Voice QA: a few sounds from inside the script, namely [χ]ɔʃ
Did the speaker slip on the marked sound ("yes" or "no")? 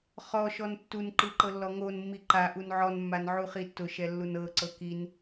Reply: no